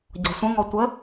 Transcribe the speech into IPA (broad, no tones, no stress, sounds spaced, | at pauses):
ɟ ɔ̤ sʷ ə̃ ŋ ɔ tʷ ə